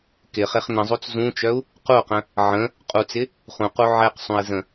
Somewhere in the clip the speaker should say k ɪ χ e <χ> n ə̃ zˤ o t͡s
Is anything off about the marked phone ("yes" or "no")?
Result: no